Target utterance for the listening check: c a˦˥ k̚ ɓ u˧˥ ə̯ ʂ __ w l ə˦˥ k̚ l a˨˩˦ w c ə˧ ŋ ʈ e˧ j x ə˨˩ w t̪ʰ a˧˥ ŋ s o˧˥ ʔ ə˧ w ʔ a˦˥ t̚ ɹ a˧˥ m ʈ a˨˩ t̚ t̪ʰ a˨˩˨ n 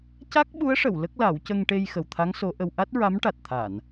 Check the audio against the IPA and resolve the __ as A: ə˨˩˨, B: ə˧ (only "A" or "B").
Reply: A